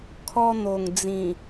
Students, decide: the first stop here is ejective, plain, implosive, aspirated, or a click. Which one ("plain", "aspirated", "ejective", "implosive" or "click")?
aspirated